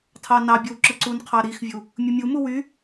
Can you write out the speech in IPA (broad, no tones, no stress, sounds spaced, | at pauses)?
tʰ ɑ n ɑ bʲ ɯ w ǁ ɯ ǀ u n qʰ ɑ ɾ i x vʲ u | mʲ ɯ mʲ u m u w y